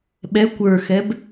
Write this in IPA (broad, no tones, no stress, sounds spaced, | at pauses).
ɓ ɛ kʷ ə˞ x ɛ b